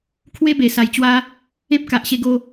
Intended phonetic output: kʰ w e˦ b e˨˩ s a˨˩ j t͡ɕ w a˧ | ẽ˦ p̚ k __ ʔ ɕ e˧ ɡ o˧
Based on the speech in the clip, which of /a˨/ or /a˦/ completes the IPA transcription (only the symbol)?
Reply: a˨